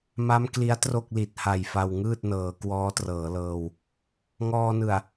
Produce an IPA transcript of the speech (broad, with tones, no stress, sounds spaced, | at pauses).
m a˦˥ m k l i˦˥ a̯ t r o˥˩ k̚ l i˨˩ t̚ h a˨˩ j f a˧ w ŋ ɯː˥˩ t̚ n ɤː˩˦ k w ɔː˦˥ t r ɤː˩˦ l ɤː˧ w | ŋ ɔː˧ n ɯ˨˩ a̯